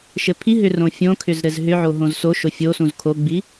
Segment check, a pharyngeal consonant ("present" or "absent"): present